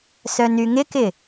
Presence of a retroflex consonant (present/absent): absent